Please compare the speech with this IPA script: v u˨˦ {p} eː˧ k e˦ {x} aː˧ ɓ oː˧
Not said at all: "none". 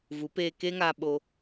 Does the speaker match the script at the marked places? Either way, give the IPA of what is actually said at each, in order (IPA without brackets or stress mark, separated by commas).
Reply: p, ŋ